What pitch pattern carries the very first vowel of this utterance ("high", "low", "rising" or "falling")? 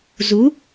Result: rising